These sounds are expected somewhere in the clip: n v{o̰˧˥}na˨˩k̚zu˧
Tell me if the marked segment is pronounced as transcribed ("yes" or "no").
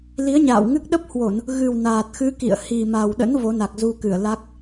no